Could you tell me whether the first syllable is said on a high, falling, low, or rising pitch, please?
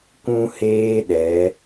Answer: high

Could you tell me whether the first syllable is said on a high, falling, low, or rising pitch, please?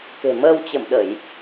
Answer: low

